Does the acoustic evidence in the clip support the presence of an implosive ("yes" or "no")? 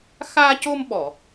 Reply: yes